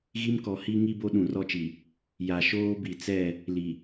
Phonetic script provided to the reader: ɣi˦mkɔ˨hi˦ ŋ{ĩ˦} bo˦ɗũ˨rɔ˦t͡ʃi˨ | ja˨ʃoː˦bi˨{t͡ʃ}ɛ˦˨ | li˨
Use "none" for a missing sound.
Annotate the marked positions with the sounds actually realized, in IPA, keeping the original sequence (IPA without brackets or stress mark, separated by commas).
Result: i˦, t͡s